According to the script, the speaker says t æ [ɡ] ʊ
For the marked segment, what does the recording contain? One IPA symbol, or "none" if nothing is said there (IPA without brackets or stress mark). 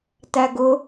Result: ɡ